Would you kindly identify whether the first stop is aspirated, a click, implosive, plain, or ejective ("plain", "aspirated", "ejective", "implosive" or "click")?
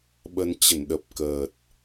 implosive